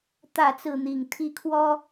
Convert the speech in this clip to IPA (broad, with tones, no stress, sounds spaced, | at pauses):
t̪ ä˥˨ t͡s ɹ̩˥˨ n̪ i˨˩ ŋ t̪ʰ i˦ kʰ w ɔ˦